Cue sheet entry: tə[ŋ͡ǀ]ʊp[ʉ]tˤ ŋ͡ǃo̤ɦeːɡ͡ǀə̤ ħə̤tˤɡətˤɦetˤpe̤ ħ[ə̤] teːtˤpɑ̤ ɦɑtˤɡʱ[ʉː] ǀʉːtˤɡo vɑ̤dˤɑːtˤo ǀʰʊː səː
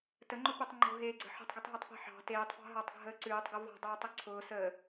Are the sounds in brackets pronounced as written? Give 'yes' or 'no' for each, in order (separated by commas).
no, yes, no, no